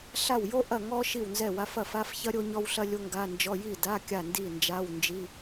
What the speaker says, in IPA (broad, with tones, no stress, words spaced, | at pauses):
ɬa˥˩w jo˥ ʔɐ˥˩ŋɔ˥ ʃi˥˩wnzɛ˥˩wa˧˥˧f ɐ˥˩fa˧˥˧fçɐ˥ ɾʲo˥ɲɔ˥wɬɐ˥ lʲo˥ŋɡa˧˥˧nd͡ʒɔ˧˥˧ ji˥˩ da˧˥˧ kʲa˥˩ndi˥˩ nd͡ʒa˧˥˧wnd͡ʒi˧˥˧